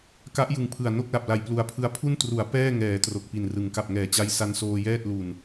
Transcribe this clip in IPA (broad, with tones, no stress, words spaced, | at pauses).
ka˦˥ʔjɯ˨˩ŋpʰɯ˨˩a̯ no˥˩k̚la˨˩p̚la˨˩j plu˨˩a̯pʰɯ˦˥a̯ pʰu˥˩ntru˩˦a̯ pɛː˥˩ŋɛː˩˦ tro˨˩k̚pi˨˩nrɯ˩˦ŋ ka˨˩p̚ŋɛː˨˩t͡ɕa˦˥j sa˦˥nsoː˧jɛː˥˩t̚ lu˨˩n